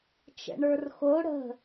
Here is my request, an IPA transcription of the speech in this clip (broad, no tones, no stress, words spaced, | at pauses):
t͡ʃə̰ɳə˞rxo ɽə̤